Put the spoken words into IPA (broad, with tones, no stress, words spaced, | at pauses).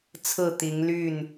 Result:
t͡sʰɹ̩˥˨t̪i˨˦ŋ ly˥˨n